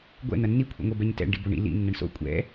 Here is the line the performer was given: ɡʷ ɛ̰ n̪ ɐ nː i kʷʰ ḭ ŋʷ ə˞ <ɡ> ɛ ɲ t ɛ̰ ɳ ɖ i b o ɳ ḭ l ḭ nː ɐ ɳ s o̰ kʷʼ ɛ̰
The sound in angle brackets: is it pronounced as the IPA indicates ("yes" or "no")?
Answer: no